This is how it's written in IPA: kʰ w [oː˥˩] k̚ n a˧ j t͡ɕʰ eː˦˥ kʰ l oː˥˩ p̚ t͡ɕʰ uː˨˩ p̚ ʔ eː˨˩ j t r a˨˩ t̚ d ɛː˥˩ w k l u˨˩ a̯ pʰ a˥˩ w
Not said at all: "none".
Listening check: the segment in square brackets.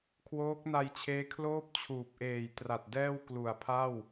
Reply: oː˦˥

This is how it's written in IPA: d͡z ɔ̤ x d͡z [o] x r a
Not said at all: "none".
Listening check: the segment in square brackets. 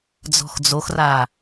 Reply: o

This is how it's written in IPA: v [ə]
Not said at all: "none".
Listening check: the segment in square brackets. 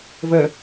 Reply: ə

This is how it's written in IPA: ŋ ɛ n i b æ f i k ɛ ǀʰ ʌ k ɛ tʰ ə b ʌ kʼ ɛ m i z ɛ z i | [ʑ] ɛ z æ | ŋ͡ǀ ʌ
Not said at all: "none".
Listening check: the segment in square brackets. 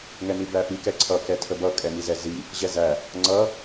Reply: ʑ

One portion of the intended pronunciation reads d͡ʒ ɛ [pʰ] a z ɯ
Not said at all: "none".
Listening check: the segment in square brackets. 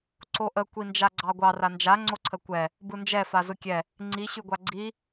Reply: f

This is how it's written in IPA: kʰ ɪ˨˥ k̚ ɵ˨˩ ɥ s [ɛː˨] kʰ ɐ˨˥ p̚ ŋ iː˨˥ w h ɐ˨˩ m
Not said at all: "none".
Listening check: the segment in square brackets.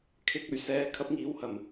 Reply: ɛː˨˥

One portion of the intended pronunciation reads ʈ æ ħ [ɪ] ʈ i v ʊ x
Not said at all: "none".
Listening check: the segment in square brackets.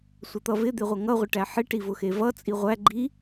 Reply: ɪ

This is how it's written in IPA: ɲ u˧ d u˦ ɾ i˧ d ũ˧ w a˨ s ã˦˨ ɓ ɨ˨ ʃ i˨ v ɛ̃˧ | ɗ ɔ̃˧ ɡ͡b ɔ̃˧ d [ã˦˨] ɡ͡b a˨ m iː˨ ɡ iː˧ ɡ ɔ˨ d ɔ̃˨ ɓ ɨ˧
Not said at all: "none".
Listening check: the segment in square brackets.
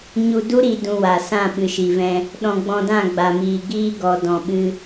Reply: ã˦˨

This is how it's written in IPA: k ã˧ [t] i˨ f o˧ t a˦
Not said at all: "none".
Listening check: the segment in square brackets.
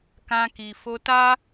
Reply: k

